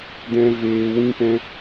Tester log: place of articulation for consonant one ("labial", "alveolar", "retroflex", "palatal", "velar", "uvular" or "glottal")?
alveolar